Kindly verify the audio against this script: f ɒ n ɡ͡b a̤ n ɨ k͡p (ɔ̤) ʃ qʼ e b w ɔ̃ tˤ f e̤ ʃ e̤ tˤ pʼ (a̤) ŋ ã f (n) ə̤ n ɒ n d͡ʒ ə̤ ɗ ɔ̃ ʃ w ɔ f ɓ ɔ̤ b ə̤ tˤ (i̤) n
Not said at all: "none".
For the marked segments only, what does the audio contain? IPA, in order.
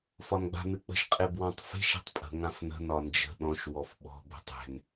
ə̤, ə̤, n, e̤

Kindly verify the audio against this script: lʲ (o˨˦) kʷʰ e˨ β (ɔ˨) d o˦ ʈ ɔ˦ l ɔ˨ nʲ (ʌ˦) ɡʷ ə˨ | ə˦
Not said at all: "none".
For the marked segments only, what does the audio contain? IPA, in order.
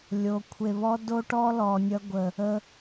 o˨˦, ɔ˦, ʌ˦

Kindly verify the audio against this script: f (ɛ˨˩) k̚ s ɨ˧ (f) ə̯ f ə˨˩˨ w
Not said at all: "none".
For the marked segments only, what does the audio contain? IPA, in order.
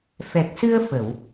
ɛ˨˩, none

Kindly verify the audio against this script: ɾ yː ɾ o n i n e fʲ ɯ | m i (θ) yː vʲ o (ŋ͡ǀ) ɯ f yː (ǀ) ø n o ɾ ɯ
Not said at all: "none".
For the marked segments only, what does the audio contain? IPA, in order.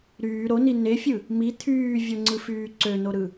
t̪ʰ, ŋ͡ǀ, ǀ

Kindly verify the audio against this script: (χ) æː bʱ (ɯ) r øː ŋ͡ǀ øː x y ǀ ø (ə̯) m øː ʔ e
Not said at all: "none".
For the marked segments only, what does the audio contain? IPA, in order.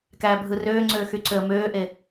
k, ɯ, ə̯

